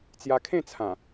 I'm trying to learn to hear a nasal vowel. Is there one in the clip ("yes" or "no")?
yes